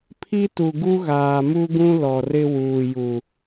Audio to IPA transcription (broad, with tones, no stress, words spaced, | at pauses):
pʰi˦tu˨ ɡu˦ɣaː˨mu˦ɡũ˦ lɔ˨ rɪ˦wuː˨ju˨